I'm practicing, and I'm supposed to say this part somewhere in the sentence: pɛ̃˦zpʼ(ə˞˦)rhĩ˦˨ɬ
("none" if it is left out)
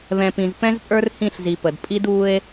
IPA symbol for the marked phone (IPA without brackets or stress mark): ə˞˦